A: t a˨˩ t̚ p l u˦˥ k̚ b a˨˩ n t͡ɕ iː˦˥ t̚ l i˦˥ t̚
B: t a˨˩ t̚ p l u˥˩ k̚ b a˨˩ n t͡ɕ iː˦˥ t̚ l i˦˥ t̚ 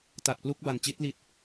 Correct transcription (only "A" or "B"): A